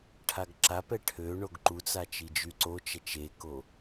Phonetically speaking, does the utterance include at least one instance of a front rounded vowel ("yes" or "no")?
yes